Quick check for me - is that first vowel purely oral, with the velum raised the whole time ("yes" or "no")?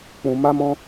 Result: no